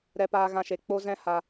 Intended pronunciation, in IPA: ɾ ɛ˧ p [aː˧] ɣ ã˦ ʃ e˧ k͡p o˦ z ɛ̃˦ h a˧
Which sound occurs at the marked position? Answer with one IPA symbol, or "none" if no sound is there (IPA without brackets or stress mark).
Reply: aː˧